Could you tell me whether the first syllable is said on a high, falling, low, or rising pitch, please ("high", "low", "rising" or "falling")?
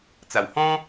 low